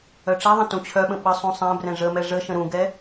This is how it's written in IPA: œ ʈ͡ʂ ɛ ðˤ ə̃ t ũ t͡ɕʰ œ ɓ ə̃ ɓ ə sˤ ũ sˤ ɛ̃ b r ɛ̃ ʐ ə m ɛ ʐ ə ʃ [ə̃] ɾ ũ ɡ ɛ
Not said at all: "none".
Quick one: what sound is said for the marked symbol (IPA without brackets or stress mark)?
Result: ə̃